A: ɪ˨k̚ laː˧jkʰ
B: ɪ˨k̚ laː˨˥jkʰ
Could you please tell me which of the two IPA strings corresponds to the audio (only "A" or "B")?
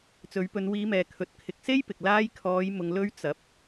A